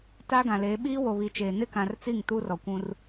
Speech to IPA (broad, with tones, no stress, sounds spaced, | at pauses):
t aː˦ ɡ ã˨ l eː˨˦ ɓ iː˦ w o˨ β i˨ t͡ʃ eː˨ n ɪ˦˨ k ã˨ r t͡s i˦˨ ŋ t u˦ r ɔ˨ kʷ ũ˦ r